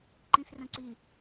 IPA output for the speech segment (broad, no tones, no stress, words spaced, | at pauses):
ǃĩsrə̃ǀi